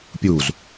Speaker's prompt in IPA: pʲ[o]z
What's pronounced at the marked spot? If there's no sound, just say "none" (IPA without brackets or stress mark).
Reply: u